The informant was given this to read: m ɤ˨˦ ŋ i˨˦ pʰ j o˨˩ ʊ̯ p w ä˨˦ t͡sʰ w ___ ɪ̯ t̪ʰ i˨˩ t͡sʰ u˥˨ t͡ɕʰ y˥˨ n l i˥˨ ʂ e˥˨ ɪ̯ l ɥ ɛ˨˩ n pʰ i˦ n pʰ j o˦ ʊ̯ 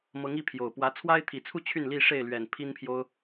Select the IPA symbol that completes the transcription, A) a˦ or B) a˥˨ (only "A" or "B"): A